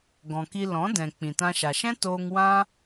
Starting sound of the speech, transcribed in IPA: ɡ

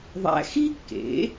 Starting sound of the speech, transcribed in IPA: ðˤ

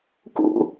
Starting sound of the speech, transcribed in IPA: k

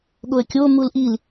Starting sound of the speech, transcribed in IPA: ɠ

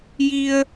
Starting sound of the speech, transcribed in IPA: j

